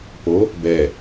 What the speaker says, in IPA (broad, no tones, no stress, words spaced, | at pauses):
po | bɛ